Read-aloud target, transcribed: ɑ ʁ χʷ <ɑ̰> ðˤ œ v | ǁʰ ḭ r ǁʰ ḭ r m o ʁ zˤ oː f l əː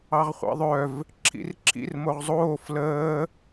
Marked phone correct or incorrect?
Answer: correct